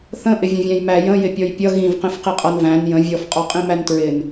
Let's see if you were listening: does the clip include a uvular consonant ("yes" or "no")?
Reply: yes